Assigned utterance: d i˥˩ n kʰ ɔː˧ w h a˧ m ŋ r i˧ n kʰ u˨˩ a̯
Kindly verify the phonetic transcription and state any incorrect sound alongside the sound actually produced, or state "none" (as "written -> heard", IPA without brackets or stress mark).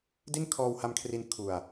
ŋ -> kʰ